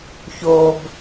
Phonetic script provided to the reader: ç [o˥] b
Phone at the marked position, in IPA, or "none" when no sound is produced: o˧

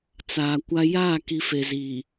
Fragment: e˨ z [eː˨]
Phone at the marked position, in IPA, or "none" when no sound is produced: iː˨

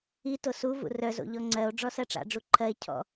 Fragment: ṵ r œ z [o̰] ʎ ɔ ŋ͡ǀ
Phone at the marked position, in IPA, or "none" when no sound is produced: o̰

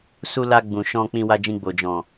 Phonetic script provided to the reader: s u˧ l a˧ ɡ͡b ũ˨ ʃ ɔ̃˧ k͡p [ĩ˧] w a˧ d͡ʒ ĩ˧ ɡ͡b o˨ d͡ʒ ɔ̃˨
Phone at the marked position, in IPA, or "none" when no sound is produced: ĩ˧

